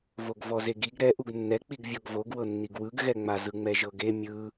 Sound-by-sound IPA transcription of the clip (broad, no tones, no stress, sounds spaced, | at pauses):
v o ɡ v ɔ z e ɡ i ɡ ɾ ɛ ʔ u ɡ nː ɛ k͡p i ɡ vʲ ɔ ɡ v o ɡ w ɤ nː i ɡ w ɯ ɡ ɣ ɛ ŋ͡m a z ɯ ŋ͡m ɛ ʒ ɤ ɡ e mʲ ɯ